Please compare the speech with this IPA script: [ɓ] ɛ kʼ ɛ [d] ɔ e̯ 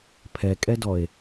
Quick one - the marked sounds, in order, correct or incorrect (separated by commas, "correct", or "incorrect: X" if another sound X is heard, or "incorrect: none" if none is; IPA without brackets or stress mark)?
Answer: incorrect: pʰ, correct